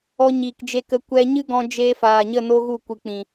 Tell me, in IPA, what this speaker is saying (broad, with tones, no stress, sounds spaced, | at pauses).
ɔ˧ ɲ iː˨ k d͡ʒ e˧ k ə˧ kʷ ɛ˧ ɲ ɨ˦ ɡ ɔ̃˧ d͡ʒ eː˧ f aː˨ ɲ ə˦˨ n o˦ ɣ u˦˨ kʷ ɨ˨ k͡p ĩ˨